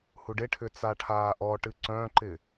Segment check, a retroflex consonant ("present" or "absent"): present